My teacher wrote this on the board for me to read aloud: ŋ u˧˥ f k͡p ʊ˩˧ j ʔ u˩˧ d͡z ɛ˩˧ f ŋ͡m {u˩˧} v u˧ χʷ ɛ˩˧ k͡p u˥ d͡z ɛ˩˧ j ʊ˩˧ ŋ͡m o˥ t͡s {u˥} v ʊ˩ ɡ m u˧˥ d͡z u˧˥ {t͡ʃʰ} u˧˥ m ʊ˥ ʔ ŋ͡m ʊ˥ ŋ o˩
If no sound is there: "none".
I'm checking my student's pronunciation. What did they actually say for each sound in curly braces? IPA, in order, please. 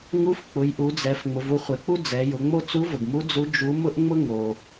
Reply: ʊ˩˧, u˧˥, d͡ʒ

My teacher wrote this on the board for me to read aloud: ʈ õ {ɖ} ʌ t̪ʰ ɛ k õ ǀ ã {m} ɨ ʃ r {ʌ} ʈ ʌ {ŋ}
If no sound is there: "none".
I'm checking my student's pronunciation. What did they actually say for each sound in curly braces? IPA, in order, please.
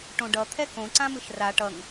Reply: ɖ, m, a, ŋ

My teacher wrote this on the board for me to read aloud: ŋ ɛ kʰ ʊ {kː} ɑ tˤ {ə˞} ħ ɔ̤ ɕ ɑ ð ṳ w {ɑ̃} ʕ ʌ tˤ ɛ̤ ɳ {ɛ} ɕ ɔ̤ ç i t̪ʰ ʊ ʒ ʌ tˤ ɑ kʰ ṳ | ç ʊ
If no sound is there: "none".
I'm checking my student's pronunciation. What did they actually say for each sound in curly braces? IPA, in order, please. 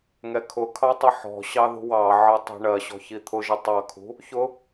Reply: kʰ, ʌ, ɑ, ɜ

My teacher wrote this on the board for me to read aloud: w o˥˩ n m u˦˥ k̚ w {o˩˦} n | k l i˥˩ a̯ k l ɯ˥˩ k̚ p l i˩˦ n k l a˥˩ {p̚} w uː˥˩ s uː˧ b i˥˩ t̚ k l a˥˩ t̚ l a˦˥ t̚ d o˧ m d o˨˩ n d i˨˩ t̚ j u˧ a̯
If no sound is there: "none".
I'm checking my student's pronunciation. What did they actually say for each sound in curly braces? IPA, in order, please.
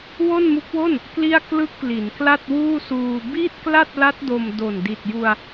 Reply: o˥˩, t̚

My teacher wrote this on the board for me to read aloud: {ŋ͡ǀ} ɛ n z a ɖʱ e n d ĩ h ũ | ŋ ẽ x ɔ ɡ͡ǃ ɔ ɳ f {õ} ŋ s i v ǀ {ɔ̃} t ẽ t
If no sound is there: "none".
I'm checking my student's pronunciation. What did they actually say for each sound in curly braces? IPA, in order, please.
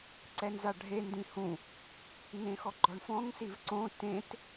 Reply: ǀ, ɔ̃, õ

